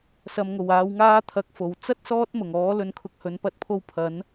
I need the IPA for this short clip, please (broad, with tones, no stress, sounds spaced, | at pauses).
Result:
s ɐ˨ m ŋ o˨˩ w aː˨˧ w ŋ aː˥ t̪ʰ ɐ˨˥ k̚ f o˨˩ w t͡s ɐ˥ t̚ s ɔː˥ t̚ m ʊ˨˩ ŋ ɔː˨˥ l ɵ˨ n kʰ ʊ˨ k̚ h ɵ˨˥ n p ɐ˨˥ t̚ pʰ o˧ w pʰ ɐ˨˥ n